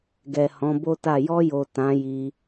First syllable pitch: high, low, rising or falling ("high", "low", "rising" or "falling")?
low